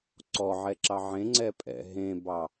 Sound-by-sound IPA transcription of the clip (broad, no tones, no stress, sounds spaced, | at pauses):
ǀ ɔ ʕ ɛ ǁ ɑ ʕ ẽ ŋ͡ǀ ɛ pʼ ɛ̰ ɦ ẽ b ɑ